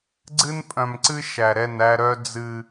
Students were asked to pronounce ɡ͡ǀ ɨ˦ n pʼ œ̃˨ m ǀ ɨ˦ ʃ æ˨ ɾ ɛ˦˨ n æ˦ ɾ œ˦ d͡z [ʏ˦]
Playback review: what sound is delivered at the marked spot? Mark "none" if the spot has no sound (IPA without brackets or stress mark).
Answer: ɨ˦